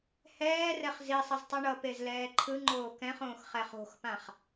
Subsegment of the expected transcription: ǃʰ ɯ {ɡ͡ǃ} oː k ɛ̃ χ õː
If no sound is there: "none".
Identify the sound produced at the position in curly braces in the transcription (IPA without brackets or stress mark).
ŋ͡ǃ